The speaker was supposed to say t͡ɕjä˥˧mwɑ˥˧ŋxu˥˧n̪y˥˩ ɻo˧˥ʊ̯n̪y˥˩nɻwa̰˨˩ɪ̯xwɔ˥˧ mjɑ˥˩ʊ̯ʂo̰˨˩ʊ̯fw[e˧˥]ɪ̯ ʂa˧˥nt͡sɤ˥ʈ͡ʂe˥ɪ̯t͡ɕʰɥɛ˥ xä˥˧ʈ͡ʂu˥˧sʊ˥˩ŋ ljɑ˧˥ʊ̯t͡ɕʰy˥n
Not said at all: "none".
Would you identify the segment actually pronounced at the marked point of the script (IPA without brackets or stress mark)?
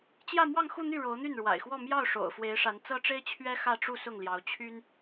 e˧˥